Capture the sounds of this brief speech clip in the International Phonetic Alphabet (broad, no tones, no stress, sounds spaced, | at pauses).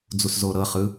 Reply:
d͡z u s z o ɾ ɤ χ ɯ